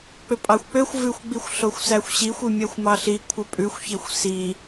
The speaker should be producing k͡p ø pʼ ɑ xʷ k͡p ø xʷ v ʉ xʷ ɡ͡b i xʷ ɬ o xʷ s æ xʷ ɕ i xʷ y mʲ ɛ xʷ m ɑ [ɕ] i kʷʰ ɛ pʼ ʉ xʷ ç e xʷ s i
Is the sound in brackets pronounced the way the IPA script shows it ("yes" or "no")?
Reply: no